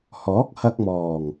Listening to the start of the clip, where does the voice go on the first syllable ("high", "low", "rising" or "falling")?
rising